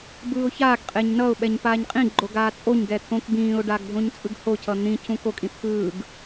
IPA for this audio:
b ɯː ʊ̯ ç aː ɡ qʼ e ɲ n ʌ ʊ̯ ɓ ɛ ɲ p aː ɲ qʼ ĩ ɡ͡ǃ o ɡ aː t͡sʼ o ɲ ɡ ɛ t̪ʰ õ k b ĩː ʊ̯ ɖ a ɡ dʱ õ ɲ t͡sʼ ɯ ɡ h o cʰ ʌ n̪ ĩ cʰ ũ k o kʼ ĩ t̪ʰ ɯː ɡ

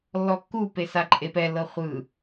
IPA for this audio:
lː ɔ kː u p e s a ǃʼ e p ɛ l ɤ χʷ ɯ

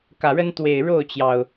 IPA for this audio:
k ä˨˩ ɻ ə˦ n t̪ w e˨˩ ɪ̯ ɻ o˥˨ ʊ̯ t͡ɕ j ɑ˩ ʊ̯

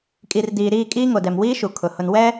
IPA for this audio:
kʼ i˨ r d iː˨ ɾ iː˦˨ kʼ iː˦ ŋ o˨ d ɛ˨ m w iː˦ ʃ u˨ kʰ ʊ˨ h ʊ˨ n w ɛ˦

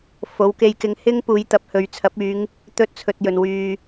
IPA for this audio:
f o˨˧ w k e˧ j k ɪ˧ ŋ h ɪ˥ ŋ p uː˨˧ j t̪ ɐ˨˥ p̚ h ɵ˨ ɥ t͡sʰ ɐ˨˥ p̚ yː˨˧ ŋ | t̪ ɵ˥ t̚ t͡sʰ ɵ˧ t̚ j ɵ˨ n w yː˨

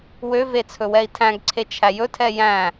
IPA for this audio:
w ø v e t͡sʰ ɵ w ɛ i̯ tʰ æ̃ ɡ ǀʰ e t͡ʃʰ æ j ɵ tʰ ɛ j æ̃

